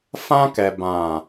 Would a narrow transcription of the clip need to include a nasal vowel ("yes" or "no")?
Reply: yes